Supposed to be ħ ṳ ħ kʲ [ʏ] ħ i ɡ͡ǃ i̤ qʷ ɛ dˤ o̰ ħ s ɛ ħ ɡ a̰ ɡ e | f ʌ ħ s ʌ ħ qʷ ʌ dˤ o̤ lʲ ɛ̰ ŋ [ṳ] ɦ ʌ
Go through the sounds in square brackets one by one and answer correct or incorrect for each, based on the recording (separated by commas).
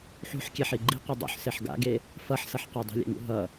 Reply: incorrect, incorrect